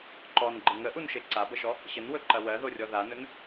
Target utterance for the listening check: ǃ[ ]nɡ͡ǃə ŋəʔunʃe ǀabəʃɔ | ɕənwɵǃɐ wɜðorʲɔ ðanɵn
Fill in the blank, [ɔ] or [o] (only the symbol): ɔ